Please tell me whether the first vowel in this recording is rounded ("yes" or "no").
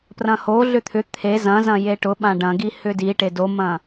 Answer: no